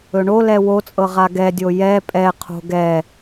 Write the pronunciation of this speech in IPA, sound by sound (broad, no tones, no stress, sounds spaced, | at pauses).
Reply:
ɵ ɳ o l ɛ w o t͡sʼ ɤ ʁ a ɡ ɛ dʲ o j ɛ pʼ ɛ qʰ o̤ ɡ ɛ